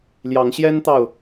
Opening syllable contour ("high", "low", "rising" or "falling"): rising